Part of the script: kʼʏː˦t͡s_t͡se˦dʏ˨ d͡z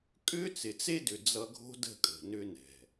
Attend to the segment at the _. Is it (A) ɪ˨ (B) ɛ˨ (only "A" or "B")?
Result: A